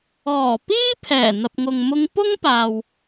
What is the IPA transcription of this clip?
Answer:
ɔː˨˩ p iː˥ pʰ ɛː˨˩ n̪ ɐ˨ p̚ ŋ ʊ˨ ŋ m ʊ˧ ŋ p ʊ˥ ŋ p aː˨ w

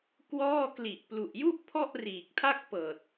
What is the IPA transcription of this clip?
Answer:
k w ɔː˥˩ k l i˨˩ ʔ p l u˨˩ ʔ j u˥˩ ʔ pʰ ɔ˥˩ ʔ r iː˨˩ k̚ tʰ a˥˩ k̚ p ɤː˨˩ t̚

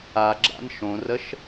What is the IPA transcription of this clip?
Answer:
a ɡ͡ǁ a̰ n ʃ õ r ə ʃ

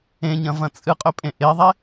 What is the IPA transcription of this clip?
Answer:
ẽ ɲ ɐ̃ v ɐ̃ t͡sʼ ɨ qʼ ɵ pʼ ẽ ʔ e ðˤ e

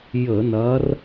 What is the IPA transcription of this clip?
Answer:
j ə˧˩˧ n ɐ˨˦ r

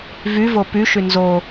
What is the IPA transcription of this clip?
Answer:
v y v o p y ʃ y n z o

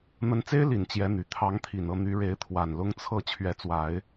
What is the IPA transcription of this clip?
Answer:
n̪ ə˧˥ n t͡s e˥ ɪ̯ l i˨˩ n t͡ɕ j ɛ˧˥ n̪ y˨˩ t̪ʰ ɑ˧˥ ŋ t̪ʰ i˨˩ n ɤ˥˩ n̪ y˧˥ ɻ e˧˥ ɪ̯ t̪ʰ w a˨˩ n l ʊ˥ ŋ t͡sʰ ɤ˥˩ t͡ɕʰ ɥ ɛ˧˥ t͡s w a˨˩˦ ɪ̯

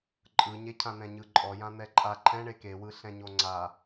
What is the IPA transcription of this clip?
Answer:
ǃʼ ɯ ɲ e cʰ ã n̪ ɛ̃ ɲ ɯ ǃʼ ɔ j ã n̪ ɛ ǃʼ a ǃʰ ɛ̃ ɳ e k e w ɯ ɬ ɛ̃ ɲ o ŋ͡ǀ a

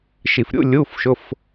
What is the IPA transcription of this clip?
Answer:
ʃ i˨˩ f ɾʲ ṵ˧˥˧ lʲ uː˧˥˧ f ʃ ʊ˧˥˧ f

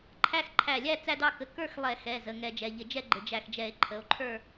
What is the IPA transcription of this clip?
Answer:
ǃʰ æ˥˧ x ǃʰ æ˧˩ lʲ æ˥˧ t͡s æ˥˧ d ɑ˥˧ k ə˧˩˧ k ə˞˥˧ x lˠ ɛ˧˩˧ x ɛ˩˧˩ z ə˩˧˩ ŋ ɛ˧˩˧ d͡ʒ ɛ˩˧˩ ʎ ɪ˧˩˧ d͡ʒ ɛ˥˧ ɡ͡ǃ ɪ˩˧˩ d͡ʒ æ˧˩ x d͡ʒ ɛ˧˩˧ e̯ ǃʰ ə˩˧˩ o̯ ǃʰ ə˞˥˧

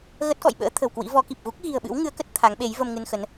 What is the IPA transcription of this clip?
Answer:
ɣ ə˦˥ t̚ k ɔ̰˧˨ j ɓ ə̰ː˧˥ t̪ʰ ə̤˨˩ w k w ḭ˧˥ v ɔ˨˦ k i˨˩ p̚ ɣ u˦˥ k̚ ɣ i̤˨˩ ə̯ ɓ ɨ̰˧˥ w ŋ ɨ˨˦ ə̯ k ə˦˥ t̚ t̪ʰ a˨˦ ŋ ɓ e˨˦ j v ə˧ m ŋ ɨ˧ n x ə˨˦ n

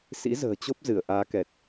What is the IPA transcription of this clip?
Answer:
s ḭ˧˥ z ə̤ː˨˩ t͡ɕ o˦˥ p̚ z ɨ˧˩ ə̯ ʔ aː˨˦ k ɛ˨˩ t̚

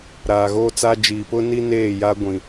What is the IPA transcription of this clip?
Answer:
ɾ aː˨ ɣ oː˦ t͡s a˦ d͡ʒ iː˨ p ʊ˦ n i˦ n eː˦˨ j a˦ ɡʷ ĩ˦

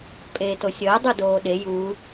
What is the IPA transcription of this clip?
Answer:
pʼ eː t o sʲ ʌː dˤ u d oː ɗ e j u

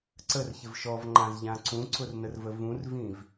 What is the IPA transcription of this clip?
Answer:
ǀ ə r ç ɪ v ʃ ɔ v ŋ͡ǃ ã z ʎ ã ǀ ũ ǀ ʊ r n ə r v ə v ũ r v ĩ v

